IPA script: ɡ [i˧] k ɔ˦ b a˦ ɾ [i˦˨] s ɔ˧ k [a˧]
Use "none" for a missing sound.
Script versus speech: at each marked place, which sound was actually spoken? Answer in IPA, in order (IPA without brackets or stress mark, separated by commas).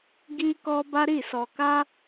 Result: i˦, i˦˨, a˦